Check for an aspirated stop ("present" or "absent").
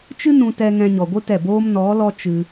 absent